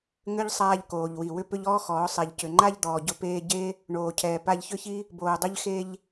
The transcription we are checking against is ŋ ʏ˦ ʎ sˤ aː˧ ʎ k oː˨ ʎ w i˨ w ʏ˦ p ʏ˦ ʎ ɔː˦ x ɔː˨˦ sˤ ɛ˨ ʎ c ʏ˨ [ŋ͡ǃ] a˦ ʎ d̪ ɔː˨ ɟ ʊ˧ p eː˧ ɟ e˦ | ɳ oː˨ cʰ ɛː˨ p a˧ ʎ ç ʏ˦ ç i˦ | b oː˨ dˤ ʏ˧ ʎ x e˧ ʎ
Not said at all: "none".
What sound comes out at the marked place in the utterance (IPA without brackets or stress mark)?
ŋ͡ǃ